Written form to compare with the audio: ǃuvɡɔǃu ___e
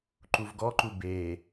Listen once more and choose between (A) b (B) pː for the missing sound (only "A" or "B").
A